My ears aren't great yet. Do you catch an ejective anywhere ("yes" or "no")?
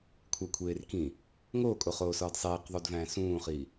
yes